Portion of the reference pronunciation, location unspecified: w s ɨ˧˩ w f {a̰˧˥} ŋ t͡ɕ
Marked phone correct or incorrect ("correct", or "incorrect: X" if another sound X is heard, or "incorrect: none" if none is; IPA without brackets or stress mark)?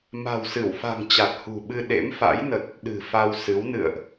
incorrect: a̤˨˩